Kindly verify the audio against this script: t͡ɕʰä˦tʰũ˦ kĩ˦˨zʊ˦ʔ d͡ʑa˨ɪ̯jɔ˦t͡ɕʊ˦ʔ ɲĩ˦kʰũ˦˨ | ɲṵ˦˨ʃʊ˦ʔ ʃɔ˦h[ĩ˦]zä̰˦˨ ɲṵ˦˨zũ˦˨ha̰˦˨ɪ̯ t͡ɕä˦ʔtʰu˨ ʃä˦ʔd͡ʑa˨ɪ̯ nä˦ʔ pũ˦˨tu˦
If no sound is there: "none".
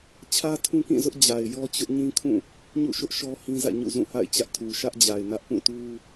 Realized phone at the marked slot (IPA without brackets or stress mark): ĩ˦